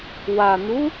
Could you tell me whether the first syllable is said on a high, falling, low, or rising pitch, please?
low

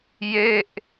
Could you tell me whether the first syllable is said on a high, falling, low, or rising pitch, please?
falling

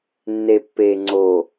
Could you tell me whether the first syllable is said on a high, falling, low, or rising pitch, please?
low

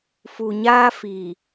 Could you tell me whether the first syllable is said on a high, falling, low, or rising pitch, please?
low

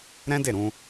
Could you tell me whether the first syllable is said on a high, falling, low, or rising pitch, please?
high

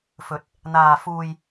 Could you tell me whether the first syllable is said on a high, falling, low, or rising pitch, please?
rising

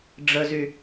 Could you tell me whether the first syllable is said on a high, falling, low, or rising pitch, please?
low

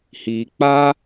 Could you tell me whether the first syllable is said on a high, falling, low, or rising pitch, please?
low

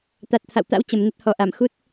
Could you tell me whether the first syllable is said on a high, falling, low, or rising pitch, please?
low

